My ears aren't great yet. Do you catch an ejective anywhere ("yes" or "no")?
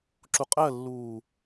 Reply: yes